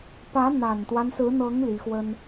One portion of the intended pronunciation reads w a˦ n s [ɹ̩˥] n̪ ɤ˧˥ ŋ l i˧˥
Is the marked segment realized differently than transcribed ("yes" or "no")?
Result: yes